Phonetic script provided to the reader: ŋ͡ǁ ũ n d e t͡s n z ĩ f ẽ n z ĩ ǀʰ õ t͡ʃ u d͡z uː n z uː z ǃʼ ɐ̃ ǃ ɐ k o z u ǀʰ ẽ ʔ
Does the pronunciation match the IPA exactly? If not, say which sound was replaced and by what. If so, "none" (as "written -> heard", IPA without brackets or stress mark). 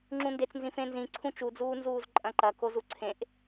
õ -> ũ